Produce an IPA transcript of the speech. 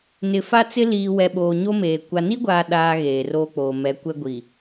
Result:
n ɪ˨ f a˦ t͡s ɪ˦ l iː˨ w ɛ˨ ɓ oː˨ ɲ o˦ m eː˨ kʷ a˨ n i˦ ɡʷ aː˨ ɗ aː˦ ɣ eː˨ r oː˦ k͡p oː˨ m ɛ˨˦ kʷ ɛ˦ ɡʷ i˨

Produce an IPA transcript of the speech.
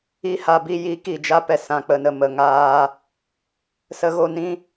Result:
i˦ h a˧ b i˧ j i˨˦ k i˨ d͡ʒ a˧ p ɛ˨ s ã˨ k͡p ə˨ n ə˨ m ə˨ ŋ aː˧ | s ə˧ ɣ o˧ n ĩ˦

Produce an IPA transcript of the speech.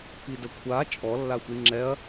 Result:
p i d ə kʷʰ a t͡ʃʼ ɔ lː a xʷ i ŋ͡ǁ ɛ ɐ̯

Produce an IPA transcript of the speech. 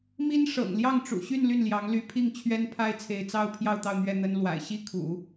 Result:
m i˥ n ʂ ɤ̰˨˩ ŋ l j ɑ˥˩ ŋ ʈ͡ʂ ṵ˨˩ ɕ y˥˧ n l y˥˩ n l j ɑ˧˥ ŋ l y˧˥ pʰ i˥˩ ŋ t͡ɕʰ ɥ ɛ˥ n pʰ a˥ ɪ̯ t͡sʰ e˧˥ ɪ̯ t͡s ɑ˥ ʊ̯ pʰ j ɑ˥˧ ʊ̯ t̪ ɑ˥˧ ʊ̯ n̪ ɥ ɛ˥˩ n̪ ə˥ n l w a̰˨˩ ɪ̯ ɕ i˥ kʰ ṵ˨˩˦

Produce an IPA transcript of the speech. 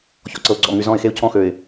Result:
ç ɔ̰˨ ǀ ɤ˨ ʊ̯ ɡ͡ǀ ɔ̰˨ ŋ y˨ z ɔ̃˦˨ ɪ̯ x e˦ ʊ̯ cʰ ɔ̃˦ x ø˨ ɪ̯

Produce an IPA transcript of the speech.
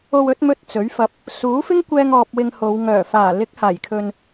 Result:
o˧ w ɵ˨˥ t̚ m ɵ˧ t̚ t͡s ɵ˨˥ ɥ f ɐ˧ p̚ | s uː˨˥ f ɪ˥ ŋ kʷ ɛː˧ ŋ ɔː˧ p̚ w ɪ˧ ŋ h o˨˧ w ŋ œː˨˩ f aː˨˩ l ɪ˨˥ k̚ h aː˨˩ j kʰ ɵ˨ n

